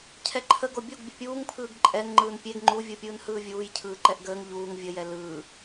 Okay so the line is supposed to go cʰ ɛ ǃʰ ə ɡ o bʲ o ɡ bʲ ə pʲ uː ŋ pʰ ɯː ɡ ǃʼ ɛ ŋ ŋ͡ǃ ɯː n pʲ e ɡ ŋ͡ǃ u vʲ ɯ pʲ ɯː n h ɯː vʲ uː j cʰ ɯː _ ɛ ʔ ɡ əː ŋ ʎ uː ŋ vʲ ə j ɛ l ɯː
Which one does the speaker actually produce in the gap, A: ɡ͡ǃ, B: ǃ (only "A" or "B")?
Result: B